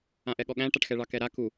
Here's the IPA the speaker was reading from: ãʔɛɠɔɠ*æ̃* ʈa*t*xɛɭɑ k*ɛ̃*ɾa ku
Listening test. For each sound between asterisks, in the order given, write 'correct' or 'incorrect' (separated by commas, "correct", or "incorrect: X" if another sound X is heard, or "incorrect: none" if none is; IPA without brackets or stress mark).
correct, incorrect: ʈ, incorrect: ɛ